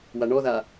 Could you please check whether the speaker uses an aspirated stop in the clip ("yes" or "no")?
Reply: no